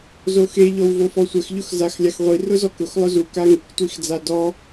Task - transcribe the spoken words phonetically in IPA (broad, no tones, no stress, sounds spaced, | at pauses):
z o x e ʎ ɔ w v o f ɔ sʷ ɛ x ʎ ʊ x z a x lʲ a x ʁʷ i r ʊ z ɔ k ʊ x lˠ ʊ z u k a ŋ ɪ k tʷ i x d͡z a d ɔ